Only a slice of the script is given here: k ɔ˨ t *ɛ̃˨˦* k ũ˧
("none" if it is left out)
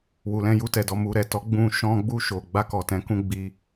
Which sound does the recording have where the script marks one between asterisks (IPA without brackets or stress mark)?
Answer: ɛ̃˨˦